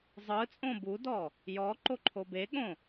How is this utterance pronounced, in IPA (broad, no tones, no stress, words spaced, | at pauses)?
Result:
zˤɯt͡sʼõ budɔ | jɔǃoǃʰo beɠõ